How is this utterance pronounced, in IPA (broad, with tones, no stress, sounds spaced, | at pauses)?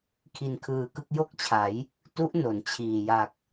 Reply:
kʰ i˧ n kʰ ɯː˧ k ɯ˥˩ k̚ j o˥˩ k̚ t͡ɕʰ a˩˦ j | t u˦˥ ʔ n o˩˦ n t͡ɕʰ iː˨˩ j a˨˩ k̚